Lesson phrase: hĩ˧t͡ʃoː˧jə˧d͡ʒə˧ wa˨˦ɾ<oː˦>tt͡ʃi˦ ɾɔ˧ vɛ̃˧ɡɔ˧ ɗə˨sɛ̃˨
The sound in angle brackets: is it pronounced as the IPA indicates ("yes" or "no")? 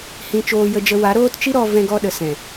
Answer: yes